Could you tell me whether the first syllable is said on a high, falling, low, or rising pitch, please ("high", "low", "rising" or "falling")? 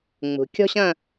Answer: low